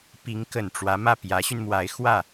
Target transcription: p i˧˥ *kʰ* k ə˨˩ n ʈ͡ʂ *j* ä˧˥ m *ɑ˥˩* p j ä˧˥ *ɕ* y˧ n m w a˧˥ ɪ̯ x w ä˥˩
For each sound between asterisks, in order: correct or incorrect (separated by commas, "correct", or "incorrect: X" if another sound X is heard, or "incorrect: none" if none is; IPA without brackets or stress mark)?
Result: incorrect: ŋ, incorrect: w, incorrect: ä˥˩, correct